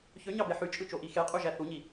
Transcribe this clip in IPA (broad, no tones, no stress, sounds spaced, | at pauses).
ç ø ɲ ɑ b e ħ y t͡ʃʼ ɯ t͡ʃ o ʔ i x e qʼ u ʒ æ θ u ɲ i